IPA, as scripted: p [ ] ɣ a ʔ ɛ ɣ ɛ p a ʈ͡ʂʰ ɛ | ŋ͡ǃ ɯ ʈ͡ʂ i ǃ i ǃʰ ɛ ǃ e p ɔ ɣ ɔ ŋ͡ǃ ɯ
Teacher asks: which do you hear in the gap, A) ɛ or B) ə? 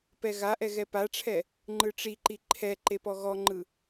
A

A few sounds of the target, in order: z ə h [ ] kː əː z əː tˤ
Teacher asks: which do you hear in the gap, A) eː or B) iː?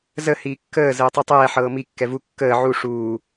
B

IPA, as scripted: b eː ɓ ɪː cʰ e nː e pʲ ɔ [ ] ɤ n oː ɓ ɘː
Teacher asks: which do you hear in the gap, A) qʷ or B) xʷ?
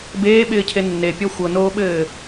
B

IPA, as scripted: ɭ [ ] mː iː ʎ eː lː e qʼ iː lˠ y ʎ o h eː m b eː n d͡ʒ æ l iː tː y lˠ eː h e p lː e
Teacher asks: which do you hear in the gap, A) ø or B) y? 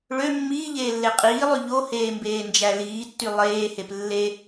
A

